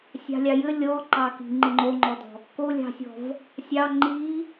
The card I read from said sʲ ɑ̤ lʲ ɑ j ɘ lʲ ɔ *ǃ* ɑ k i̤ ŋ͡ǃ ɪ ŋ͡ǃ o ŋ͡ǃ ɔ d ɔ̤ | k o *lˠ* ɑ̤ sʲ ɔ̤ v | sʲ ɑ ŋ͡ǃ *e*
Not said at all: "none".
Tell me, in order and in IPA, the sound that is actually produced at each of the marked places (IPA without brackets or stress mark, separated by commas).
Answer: ǃ, lʲ, i